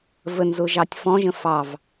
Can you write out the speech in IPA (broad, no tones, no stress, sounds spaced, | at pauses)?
v ə n z ʊ ʒ ɑ tʲ f ɔ̃ ʒ ə̃ f ɑ v